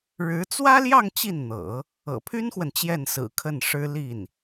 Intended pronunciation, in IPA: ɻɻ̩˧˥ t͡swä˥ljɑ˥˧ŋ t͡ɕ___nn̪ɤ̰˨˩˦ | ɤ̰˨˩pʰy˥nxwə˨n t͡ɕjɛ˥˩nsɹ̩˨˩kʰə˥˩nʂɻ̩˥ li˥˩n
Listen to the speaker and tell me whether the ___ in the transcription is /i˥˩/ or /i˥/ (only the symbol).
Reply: i˥˩